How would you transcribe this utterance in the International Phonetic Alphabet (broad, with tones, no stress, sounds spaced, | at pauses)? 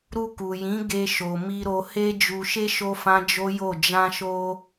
ɾ u˧ k u˨ j ĩ˨˦ ɡ e˧ ʃ o˨ m i˧ ɾ o˧ h e˧ d͡ʒ u˨ ʃ e˧ ʃ o˦ f ã˦ d͡ʒ o˦ j o˦˨ d͡ʒ ã˧ ʃ o˧